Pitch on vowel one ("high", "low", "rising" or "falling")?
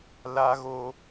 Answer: high